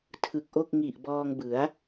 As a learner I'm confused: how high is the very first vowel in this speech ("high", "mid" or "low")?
high